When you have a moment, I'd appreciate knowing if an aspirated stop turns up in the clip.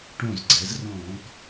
no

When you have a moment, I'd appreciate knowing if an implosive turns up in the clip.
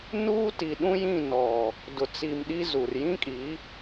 yes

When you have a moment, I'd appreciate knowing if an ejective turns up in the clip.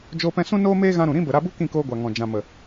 no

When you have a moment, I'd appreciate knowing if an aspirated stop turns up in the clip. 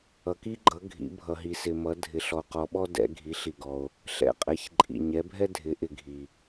no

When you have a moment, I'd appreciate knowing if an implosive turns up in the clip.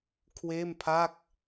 no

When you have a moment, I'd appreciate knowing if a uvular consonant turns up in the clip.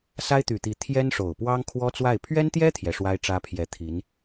no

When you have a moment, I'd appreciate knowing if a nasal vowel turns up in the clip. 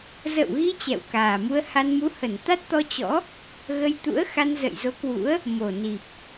no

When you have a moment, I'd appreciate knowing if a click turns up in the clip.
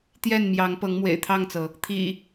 no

